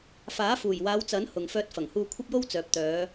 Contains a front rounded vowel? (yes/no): yes